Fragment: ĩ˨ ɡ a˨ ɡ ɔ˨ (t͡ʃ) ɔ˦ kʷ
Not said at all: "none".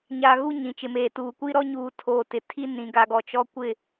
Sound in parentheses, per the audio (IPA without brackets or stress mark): t͡ʃ